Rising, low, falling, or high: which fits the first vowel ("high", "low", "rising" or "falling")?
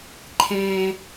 high